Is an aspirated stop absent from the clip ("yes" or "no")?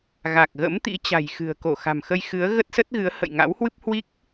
yes